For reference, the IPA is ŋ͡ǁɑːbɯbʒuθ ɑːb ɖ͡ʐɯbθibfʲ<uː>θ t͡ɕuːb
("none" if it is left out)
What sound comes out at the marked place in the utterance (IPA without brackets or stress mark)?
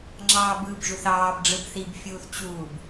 uː